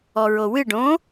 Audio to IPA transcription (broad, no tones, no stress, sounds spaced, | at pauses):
ɔ ɹ o w ɨ ɖ õ